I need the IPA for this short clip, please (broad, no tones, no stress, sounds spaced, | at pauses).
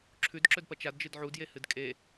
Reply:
ǁʰ ʉ d ǁ ɵ d p ɐ t͡ʃ a d d͡ʒ ɨ d ʕ u d j e h ɨ d kʼ e